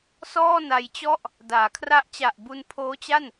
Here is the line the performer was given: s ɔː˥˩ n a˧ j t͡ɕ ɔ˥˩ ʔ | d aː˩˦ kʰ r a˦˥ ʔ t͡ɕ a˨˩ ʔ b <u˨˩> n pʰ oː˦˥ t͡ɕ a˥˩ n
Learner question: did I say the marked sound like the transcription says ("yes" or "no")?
no